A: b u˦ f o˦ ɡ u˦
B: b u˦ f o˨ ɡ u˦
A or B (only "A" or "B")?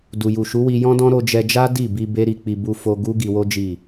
A